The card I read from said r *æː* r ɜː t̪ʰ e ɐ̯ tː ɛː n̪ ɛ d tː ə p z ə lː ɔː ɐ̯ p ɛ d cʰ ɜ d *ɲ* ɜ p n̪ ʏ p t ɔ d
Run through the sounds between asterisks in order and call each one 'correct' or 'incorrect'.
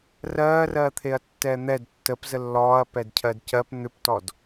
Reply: incorrect: ɜː, incorrect: c

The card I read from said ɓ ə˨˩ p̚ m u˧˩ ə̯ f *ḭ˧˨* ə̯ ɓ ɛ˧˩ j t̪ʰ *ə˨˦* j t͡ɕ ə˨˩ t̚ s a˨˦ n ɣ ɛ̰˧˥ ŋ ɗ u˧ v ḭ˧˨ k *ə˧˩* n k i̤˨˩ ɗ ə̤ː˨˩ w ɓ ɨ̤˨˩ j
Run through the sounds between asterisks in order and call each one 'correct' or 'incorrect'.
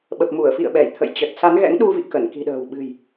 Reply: correct, incorrect: ə̰˧˨, correct

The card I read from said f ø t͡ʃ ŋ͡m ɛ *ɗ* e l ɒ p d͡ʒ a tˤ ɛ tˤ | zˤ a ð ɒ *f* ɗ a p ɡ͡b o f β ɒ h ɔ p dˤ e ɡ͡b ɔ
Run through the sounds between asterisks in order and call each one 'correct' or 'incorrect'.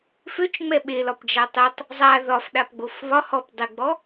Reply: incorrect: ɓ, correct

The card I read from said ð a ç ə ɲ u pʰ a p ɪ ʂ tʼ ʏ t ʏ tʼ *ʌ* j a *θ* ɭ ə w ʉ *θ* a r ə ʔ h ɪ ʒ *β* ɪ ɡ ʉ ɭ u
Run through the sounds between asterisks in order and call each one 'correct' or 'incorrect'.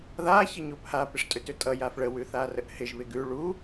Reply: correct, incorrect: f, correct, correct

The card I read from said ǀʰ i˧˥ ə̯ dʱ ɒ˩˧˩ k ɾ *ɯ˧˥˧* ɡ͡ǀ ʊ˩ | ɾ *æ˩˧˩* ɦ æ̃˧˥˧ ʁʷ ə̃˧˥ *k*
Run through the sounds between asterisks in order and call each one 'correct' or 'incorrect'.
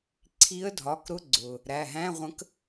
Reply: incorrect: ʊ˧˥˧, correct, correct

